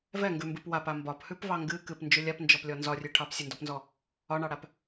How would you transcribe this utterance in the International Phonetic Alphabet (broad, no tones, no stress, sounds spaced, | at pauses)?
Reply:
v ɛ ŋ ɡ ʉ m b ɨ p w a p a m b ɒ p h ʉ p v ɑ ŋ ɡ ɨ k ɨ p n d͡ʒ ʉ lʲ a p n d͡ʒ ɔ p lʲ ɔ n z ɒ rʲ ʉ ʈʰ ɑ p sʲ ɨ n d ɔ p n z ɔ | ɒ ɳ ɑ ɽ a p